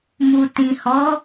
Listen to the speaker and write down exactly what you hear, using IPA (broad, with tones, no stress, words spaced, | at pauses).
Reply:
mu˨ tĩ˨hɔ˨˦